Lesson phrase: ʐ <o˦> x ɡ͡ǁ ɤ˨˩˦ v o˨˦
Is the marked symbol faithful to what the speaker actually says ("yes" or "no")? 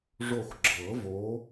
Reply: no